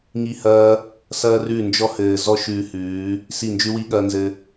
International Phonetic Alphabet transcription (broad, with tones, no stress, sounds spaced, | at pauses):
ŋ i˦˨ h ɐː˦ | s ɐː˦ r ʉ˦˨ n d͡ʒ ɔ˦ h ɘː˨ z ɔ˦ ʃ ʉː˧ h ʉː˨˦ | s i˦˨ n d͡ʒ ʉ˦ w i˦ ɠ ɐː˦ n z ɘ˧